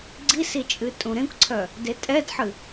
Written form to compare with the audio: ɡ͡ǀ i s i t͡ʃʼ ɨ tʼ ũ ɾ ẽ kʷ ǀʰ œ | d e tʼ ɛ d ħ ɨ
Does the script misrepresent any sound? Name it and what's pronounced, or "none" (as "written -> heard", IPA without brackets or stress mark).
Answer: none